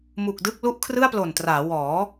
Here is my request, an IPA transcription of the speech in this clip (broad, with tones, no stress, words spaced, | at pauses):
mu˨˩k̚dɯ˥˩k̚ lu˦˥ʔkʰrɯ˥˩a̯plo˨˩ntraː˩˦ wɔː˩˦